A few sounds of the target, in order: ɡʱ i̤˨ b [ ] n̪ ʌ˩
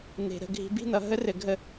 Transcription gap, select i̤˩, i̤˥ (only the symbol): i̤˥